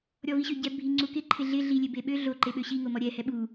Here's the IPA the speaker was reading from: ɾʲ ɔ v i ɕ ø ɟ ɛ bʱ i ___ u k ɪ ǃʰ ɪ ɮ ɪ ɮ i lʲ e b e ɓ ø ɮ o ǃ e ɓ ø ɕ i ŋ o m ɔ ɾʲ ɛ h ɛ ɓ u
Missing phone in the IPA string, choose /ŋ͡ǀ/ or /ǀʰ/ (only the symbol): ŋ͡ǀ